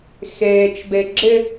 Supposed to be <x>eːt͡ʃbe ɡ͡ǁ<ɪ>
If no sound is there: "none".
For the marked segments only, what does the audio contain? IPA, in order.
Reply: x, ɪ

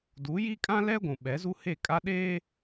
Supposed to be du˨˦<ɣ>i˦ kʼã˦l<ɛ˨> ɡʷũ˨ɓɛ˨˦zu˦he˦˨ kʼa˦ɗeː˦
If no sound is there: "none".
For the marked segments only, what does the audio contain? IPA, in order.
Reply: j, ɛ˦

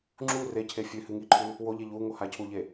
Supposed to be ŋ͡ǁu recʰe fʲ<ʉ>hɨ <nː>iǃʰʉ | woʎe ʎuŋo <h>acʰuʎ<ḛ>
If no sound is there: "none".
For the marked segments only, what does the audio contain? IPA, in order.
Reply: ʉ, ŋ, h, e

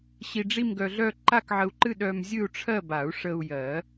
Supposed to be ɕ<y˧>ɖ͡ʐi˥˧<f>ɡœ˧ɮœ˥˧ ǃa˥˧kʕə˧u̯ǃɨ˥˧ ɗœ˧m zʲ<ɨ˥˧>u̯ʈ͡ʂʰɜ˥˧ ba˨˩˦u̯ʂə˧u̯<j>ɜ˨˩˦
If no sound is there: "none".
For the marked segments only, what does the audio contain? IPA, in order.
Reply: i˧, m, ɨ˥˧, j

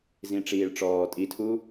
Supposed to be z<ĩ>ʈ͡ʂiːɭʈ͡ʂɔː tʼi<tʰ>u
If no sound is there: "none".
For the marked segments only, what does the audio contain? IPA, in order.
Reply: ĩ, tʰ

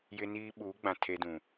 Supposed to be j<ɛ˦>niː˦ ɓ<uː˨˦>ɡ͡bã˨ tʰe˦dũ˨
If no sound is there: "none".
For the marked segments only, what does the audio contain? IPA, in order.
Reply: ɪ˦, uː˨˦

